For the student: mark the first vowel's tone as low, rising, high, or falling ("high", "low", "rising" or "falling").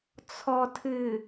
low